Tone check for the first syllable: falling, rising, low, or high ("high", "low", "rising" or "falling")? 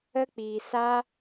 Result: high